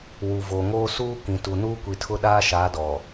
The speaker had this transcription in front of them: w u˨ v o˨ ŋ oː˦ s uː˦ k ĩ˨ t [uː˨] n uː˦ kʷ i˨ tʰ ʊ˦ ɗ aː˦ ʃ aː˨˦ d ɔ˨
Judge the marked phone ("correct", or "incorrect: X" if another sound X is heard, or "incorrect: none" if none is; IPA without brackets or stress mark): incorrect: u˨